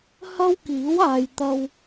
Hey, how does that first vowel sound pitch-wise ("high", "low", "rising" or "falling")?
high